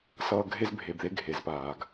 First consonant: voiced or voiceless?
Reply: voiceless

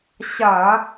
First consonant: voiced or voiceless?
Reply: voiceless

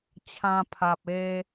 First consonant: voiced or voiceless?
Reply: voiceless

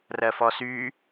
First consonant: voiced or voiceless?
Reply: voiced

